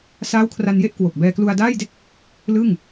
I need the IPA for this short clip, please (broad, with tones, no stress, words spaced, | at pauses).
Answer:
saː˦˥wkʰra˧nje˥˩ʔkwo˨˩k̚ bɛː˧klu˧a̯daː˥˩jde˥˩k̚ | lɯ˥˩ŋ